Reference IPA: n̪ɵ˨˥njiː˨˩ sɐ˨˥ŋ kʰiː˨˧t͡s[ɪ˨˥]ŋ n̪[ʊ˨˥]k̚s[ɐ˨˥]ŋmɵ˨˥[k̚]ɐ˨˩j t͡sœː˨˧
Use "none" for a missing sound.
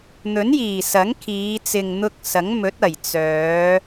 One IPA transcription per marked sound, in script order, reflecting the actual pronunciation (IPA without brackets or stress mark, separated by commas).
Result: ɪ˨, ʊ˧, ɐ˨˥, t̚